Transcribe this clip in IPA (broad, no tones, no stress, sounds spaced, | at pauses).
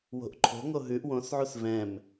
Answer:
w o̤ ʔ ǃʰ o̤ ŋ o ɦ ʉ ʔ w õ s ʕ u s v ɛ̃ m